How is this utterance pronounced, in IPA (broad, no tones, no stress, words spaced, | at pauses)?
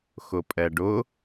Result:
xʊpʼɛɖʊ